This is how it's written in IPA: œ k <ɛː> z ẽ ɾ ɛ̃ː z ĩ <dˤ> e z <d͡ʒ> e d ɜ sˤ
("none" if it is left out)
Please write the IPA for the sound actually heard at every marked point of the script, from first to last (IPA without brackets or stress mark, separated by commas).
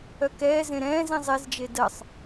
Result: ɛː, zˤ, d͡ʒ